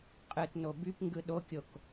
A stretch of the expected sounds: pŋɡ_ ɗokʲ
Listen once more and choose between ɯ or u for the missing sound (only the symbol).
ɯ